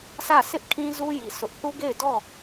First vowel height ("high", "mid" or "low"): low